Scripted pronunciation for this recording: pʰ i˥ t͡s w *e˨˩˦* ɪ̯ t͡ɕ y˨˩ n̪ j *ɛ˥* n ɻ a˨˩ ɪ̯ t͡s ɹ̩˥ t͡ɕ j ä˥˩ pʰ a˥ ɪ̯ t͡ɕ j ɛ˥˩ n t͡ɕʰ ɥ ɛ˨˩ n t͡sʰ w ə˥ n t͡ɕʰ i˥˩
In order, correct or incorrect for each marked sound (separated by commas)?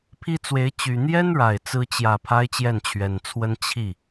incorrect, correct